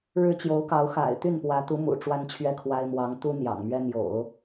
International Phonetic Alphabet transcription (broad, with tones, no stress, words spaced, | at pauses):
ɻɻ̩˥t͡ɕjo˧˥ʊ̯kɑ˧˥ʊ̯ xa̰˨˩ɪ̯t̪y˥˩npwä˧˥ t̪u˧˥ mṵ˨˩ʈ͡ʂwa˥nt͡ɕʰɥɛ˥˩kʰwa˥ɪ̯ mwɑ˧˥ŋ t̪u˥ n̪jɑ̰˨˩ŋmɥɛ˥ n̪jo̰˨˩˦ʊ̯